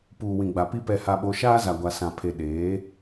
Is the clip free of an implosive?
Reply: no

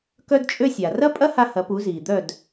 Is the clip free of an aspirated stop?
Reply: yes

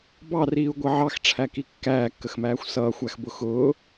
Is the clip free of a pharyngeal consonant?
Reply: no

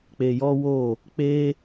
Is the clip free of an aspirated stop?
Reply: yes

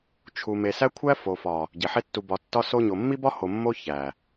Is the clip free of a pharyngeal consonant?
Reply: no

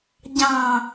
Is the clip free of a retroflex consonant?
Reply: yes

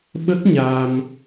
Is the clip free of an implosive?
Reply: no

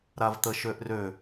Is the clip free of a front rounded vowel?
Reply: no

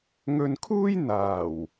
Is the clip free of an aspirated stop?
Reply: no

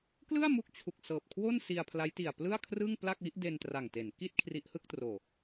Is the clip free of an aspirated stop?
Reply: no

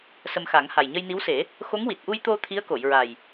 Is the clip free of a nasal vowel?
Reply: yes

